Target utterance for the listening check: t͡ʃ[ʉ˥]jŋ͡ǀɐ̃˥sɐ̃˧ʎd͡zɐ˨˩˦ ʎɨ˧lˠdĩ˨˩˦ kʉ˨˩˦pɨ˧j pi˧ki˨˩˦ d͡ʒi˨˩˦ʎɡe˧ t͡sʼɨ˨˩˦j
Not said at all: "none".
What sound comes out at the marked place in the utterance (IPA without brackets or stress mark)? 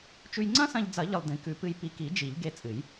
ʉ˧